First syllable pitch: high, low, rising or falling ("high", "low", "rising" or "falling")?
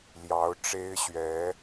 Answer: rising